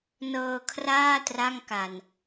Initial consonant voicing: voiced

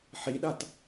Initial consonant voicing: voiceless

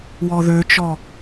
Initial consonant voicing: voiced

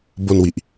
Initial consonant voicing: voiced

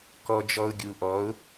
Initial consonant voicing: voiceless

